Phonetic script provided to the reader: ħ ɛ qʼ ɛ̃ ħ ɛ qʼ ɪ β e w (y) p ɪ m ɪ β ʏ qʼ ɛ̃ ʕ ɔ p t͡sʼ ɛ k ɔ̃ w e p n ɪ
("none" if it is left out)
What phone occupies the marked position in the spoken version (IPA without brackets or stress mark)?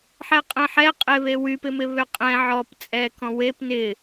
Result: y